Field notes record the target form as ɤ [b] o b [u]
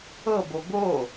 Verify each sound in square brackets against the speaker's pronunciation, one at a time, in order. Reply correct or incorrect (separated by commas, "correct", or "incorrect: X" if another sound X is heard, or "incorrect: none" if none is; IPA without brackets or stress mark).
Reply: correct, incorrect: o